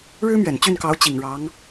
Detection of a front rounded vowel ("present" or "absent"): present